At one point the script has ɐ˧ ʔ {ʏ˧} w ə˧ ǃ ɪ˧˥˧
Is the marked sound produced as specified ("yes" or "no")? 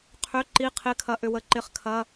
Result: yes